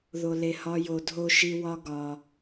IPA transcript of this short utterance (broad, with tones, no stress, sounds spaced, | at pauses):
ð o˨ l e˨ h ɒ˧ j o˧ dʱ o˦ ʃ i˦ w ɒ˦ ɡ ɒ˧